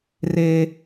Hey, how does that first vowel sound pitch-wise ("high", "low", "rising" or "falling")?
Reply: high